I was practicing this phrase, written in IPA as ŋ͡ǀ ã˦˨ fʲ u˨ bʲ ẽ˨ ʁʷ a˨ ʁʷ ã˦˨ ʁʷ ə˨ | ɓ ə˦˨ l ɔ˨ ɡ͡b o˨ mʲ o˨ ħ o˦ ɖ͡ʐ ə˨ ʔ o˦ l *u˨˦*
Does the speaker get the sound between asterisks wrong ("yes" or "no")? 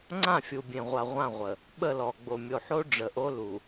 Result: yes